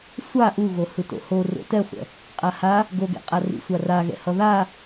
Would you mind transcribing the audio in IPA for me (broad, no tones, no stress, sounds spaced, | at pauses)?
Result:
sʷ a ʔ u ɣ o h ɯ t o̰ h o r o̰ t ɛ χʷ ɛ̰ | qʼ a h a | ɡ o ɡ ɛ̰ qʼ a r ḭ sʷ a r a ɣ ɛ̰ h ʌ ð a